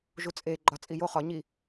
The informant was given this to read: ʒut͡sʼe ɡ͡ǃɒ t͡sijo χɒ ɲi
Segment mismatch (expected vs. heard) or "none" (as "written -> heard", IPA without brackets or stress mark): t͡s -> t͡sʼ